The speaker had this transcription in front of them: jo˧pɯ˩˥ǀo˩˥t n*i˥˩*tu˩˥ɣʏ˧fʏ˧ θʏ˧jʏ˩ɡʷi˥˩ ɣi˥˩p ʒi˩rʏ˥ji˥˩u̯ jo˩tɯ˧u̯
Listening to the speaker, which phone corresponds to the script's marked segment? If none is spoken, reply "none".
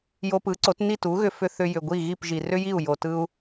i˥˩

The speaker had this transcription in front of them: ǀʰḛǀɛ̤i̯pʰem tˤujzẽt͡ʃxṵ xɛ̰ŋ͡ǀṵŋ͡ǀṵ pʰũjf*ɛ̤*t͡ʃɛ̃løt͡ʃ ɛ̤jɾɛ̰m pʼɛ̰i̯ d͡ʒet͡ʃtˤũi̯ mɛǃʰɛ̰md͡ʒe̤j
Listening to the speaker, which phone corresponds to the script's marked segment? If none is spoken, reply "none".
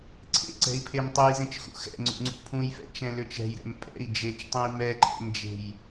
ɛ̰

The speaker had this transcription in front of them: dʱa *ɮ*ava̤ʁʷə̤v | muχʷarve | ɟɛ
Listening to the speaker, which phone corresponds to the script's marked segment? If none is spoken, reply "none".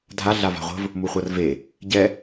ɮ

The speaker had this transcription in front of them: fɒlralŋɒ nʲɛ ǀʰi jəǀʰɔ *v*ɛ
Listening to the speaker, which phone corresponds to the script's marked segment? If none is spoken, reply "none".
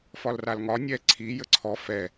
f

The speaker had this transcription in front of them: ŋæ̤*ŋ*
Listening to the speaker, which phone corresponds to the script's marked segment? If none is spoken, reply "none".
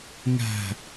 none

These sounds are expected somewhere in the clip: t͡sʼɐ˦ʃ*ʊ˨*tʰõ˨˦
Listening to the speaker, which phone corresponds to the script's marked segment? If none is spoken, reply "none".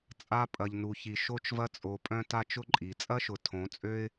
ʊ˨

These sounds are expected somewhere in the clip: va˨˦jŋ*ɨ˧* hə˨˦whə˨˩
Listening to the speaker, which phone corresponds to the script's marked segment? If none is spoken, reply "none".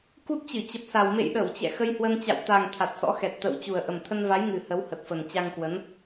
ɨ˨˩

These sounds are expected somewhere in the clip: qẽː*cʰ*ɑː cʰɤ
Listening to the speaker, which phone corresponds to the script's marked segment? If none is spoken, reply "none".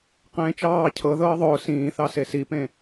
t͡ʃ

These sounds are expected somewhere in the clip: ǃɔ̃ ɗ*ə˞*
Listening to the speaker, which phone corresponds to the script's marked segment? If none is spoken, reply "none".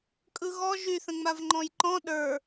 ə˞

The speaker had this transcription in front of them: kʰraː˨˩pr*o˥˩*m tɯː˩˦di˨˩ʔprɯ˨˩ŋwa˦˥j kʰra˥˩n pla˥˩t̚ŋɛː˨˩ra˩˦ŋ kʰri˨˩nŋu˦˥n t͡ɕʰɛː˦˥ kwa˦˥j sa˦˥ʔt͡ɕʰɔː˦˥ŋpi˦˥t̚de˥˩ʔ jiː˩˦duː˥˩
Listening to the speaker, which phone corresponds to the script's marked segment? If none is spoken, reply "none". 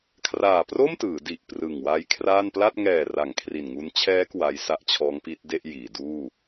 o˥˩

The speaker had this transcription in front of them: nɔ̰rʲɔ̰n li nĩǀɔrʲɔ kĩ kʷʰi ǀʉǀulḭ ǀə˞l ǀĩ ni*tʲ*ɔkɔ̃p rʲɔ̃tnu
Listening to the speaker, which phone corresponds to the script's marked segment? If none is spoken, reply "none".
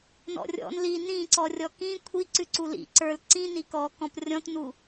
k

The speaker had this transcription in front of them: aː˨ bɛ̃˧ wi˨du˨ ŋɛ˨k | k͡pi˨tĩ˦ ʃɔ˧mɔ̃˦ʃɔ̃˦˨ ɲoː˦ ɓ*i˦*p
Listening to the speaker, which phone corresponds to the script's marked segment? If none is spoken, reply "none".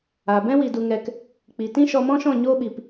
i˨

